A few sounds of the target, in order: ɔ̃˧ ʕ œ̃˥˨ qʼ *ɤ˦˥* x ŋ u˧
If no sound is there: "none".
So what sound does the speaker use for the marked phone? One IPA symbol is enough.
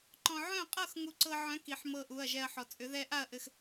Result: ɤ˥˨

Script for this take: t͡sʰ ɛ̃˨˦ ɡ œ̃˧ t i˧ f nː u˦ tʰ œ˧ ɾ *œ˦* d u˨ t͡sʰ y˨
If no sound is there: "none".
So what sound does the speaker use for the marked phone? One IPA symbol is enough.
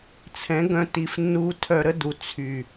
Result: ə˦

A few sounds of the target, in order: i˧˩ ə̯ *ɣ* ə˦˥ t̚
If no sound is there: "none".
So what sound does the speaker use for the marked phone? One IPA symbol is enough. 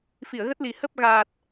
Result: ɣ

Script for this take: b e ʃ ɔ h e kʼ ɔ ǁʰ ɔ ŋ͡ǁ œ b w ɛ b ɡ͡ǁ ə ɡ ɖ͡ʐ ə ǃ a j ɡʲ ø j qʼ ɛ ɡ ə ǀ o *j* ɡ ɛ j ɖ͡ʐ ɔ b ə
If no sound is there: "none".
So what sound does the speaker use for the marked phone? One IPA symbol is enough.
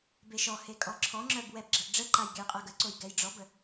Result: j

